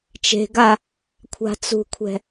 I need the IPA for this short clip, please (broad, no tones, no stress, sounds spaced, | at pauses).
t͡ʃ e̤ ɡ a | kʷʰ a̤ t͡s ṳ kʷʰ ɛ̤